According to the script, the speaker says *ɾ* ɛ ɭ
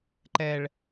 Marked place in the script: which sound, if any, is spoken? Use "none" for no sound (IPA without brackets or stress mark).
ǃ